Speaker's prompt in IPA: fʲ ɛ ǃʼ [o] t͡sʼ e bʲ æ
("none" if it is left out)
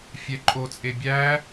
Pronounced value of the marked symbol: o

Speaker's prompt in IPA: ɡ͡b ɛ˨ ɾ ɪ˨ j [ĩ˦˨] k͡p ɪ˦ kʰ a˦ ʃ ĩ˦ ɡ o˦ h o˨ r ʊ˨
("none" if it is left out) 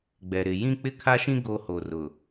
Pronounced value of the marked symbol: ĩ˦˨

